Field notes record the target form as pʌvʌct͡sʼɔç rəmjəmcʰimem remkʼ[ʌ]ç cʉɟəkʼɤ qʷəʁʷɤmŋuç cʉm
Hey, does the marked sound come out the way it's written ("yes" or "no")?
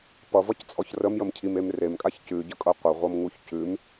no